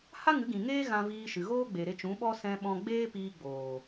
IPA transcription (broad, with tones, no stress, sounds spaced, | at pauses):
h a˦ ŋ ɨ˨˦ ɡ ĩ˨ ŋ eː˦ ɣ ã˧ v iː˧ ʃ ɨ˨ ɣ oː˦ ɡ͡b e˨ ɾ e˧ t͡ʃ ũ˨˦ ɓ ɔ˦ s ɛ̃˧ ɓ ɔ̃˧ ɡ͡b eː˦ p iː˧ ɡ͡b oː˨